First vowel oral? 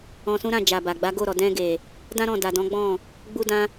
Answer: no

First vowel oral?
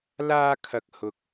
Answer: yes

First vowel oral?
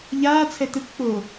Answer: yes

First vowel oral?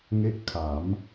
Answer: yes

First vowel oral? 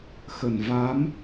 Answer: yes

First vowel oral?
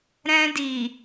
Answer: no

